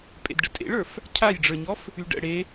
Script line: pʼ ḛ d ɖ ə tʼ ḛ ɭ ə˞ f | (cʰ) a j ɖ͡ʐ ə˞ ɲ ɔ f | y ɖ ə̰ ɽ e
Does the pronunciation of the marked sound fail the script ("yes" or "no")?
no